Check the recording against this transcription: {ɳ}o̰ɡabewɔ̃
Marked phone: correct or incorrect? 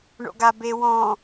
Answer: correct